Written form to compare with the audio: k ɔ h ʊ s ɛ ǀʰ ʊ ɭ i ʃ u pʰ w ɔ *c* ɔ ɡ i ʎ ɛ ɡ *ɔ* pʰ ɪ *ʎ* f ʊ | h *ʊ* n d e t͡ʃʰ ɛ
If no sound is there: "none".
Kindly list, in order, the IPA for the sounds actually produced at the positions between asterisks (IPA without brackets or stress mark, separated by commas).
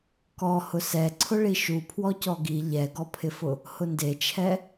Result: c, ɔ, none, ʊ